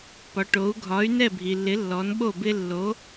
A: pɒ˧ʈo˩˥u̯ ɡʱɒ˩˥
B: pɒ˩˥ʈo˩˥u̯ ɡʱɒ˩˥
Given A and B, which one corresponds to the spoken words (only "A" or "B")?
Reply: B